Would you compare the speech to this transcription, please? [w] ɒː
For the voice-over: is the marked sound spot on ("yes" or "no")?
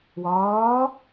yes